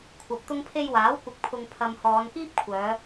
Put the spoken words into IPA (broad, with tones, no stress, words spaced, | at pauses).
kʷʰɐ˨p̚t̪ʊ˧ŋpʰe˧jwaː˨˥w kʷɪ˨˥k̚pʰʊ˨ŋ pʰɐ˨m hɔː˨˧nkiː˥p̚kʷʰœː˨˧